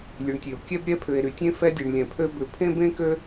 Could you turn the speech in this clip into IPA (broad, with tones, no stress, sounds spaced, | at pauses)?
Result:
lʲ ʉ˧ ɳ tʲ e˧ o̯ kʲ ɛ˥ b ɾʲ ɛ˥ pʰ ʏ˧ e̯ ɾ y˧ tʲ ẽ˥ f ɛ˥ dʲ e˧ ɳ lʲ ɛ̃˧ pʰ ø˥ b ʏ˧ pʰ ẽ˥ b ẽ˥ k ø˥